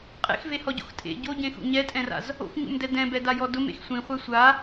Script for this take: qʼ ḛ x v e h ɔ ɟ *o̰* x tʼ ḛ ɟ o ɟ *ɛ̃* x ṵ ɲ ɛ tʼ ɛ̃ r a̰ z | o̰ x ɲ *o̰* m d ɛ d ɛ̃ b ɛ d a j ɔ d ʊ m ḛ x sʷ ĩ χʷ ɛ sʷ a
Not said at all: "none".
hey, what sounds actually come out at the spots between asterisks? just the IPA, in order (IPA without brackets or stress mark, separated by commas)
o̰, ẽ, ṵ